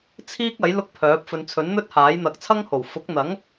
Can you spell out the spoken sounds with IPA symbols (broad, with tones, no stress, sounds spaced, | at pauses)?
t͡sʰ iː˥ k̚ ɐ˨˥ j l ʊ˥ k̚ pʰ œː˨˥ p̚ f ɵ˨˧ n t͡sʰ ɵ˨˥ n n̪ ɵ˥ t̚ h aː˨˥ j n̪ ɐ˨˥ k̚ t͡sʰ ɐ˥ ŋ h o˨˩ w f ʊ˨˥ k̚ n̪ ɐ˨˥ ŋ